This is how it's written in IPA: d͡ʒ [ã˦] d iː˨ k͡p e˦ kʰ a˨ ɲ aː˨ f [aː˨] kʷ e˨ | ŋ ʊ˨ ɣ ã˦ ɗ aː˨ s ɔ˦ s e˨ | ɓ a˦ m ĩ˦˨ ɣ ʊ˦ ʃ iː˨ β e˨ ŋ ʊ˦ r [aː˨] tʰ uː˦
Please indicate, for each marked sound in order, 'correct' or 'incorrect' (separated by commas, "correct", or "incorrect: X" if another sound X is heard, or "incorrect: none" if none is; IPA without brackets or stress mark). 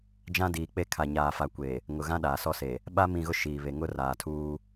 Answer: correct, incorrect: a˨, correct